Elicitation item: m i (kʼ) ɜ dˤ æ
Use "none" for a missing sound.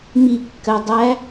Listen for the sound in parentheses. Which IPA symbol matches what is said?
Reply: kː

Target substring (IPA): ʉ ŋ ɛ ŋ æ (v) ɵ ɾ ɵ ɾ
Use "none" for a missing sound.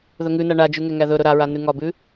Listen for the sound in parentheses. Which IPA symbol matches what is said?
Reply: ð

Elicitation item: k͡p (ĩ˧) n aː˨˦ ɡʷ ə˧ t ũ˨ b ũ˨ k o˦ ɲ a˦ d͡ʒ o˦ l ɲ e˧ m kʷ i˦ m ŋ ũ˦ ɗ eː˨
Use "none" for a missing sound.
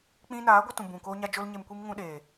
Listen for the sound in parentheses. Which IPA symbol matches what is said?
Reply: ĩ˦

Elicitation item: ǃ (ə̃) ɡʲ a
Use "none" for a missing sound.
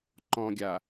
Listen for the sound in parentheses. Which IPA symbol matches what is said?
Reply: ɔ̃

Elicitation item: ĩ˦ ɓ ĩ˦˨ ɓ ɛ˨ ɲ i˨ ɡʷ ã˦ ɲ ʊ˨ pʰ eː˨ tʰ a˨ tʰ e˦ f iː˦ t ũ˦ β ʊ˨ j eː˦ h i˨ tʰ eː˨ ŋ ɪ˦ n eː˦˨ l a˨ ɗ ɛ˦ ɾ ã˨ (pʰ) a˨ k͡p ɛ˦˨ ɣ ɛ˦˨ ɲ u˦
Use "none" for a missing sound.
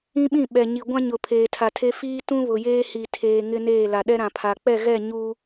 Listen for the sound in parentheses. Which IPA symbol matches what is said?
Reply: pʰ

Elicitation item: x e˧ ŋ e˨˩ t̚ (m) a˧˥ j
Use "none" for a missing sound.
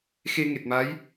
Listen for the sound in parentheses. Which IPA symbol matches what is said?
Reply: m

